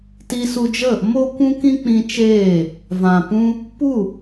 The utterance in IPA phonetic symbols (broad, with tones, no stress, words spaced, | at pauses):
ti˧su˧d͡ʒə˦˨ | mo˦ kʷũ˦kĩ˦k͡pĩ˧t͡ʃeː˦˨ | vã˨pũ˦ | pu˦˨